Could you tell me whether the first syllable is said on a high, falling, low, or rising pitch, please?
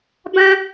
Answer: high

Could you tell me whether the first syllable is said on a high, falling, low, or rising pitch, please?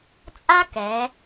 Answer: high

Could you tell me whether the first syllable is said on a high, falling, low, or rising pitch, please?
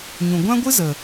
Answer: low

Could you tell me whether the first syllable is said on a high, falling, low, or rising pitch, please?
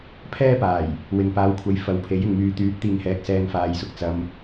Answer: high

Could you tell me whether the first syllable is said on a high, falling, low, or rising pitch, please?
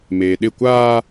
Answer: low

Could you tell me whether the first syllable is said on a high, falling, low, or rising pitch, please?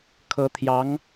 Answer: rising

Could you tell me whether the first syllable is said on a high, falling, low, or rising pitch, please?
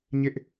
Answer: high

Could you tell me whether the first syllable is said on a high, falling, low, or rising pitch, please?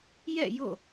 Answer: falling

